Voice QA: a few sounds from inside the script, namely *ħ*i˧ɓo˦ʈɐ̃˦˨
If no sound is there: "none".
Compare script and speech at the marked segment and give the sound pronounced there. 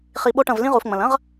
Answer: χ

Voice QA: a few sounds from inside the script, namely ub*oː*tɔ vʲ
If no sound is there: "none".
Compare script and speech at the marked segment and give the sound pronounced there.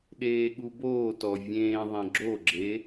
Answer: oː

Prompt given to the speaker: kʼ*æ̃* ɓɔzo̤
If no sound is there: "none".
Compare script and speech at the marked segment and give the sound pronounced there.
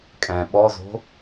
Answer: ɛ̃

